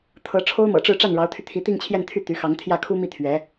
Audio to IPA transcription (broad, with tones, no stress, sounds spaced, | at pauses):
t̪ʰ ɤ˧˥ ʈ͡ʂʰ o˥ ʊ̯ m ɤ̰˨˩ ʈ͡ʂ ɻ̩˥˧ ʈ͡ʂ a˥˩ n ɻ ɑ˧˥ ʊ̯ t̪ʰ y˧ t̪ʰ i˧˥ t̪ i˥˧ ŋ t͡ɕʰ j ɛ˥˧ n t̪ʰ y˥˩ t̪ y˧˥ x ɑ˧˥ ŋ t̪ʰ j ä˥˩ kʰ u˥ m i˥˩ t̪ʰ ɥ ɛ˧˥